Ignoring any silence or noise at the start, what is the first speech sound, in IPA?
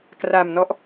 k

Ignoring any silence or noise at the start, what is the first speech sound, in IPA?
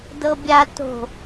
d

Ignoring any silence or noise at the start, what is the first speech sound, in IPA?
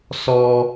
s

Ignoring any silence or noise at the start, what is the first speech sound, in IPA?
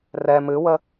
r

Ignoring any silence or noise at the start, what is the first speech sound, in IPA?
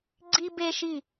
ɡ͡ǀ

